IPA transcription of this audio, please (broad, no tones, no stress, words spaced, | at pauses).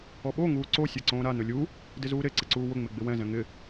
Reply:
ɔɓo ŋuːǀo sʲaǀõːɾa nʊlʲu | dɪzuːɾe ǀɪǀuːwʊ ŋ͡mɪɡ͡bɪwɛ̃ zɛ̃ŋɪ